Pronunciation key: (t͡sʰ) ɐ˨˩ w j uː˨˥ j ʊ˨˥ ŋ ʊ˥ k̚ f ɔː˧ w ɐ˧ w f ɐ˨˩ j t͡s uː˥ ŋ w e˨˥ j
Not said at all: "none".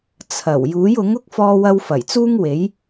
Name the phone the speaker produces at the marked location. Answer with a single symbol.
t͡sʰ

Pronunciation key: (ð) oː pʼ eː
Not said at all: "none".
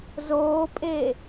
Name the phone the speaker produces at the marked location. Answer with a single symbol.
z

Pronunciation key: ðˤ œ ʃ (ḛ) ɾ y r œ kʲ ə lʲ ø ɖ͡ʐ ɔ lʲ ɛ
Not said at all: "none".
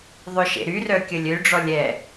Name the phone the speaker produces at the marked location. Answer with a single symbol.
ḛ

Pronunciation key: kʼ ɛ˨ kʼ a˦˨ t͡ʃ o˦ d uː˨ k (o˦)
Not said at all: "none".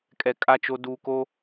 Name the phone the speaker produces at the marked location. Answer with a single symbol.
o˦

